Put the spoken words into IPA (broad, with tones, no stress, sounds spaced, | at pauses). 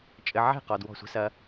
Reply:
t͡ʃʼ ɘ˨ ʕ ɛ̤˦˨ q ɔ˨ d w ɔ̤˦˨ sʷ ɛ̤˦ s ɐ˦